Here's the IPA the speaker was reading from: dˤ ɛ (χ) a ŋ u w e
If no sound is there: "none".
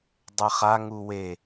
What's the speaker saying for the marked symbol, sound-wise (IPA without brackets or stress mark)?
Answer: χ